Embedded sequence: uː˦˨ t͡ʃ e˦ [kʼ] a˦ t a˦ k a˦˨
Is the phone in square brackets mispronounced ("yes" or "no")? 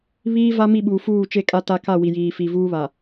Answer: no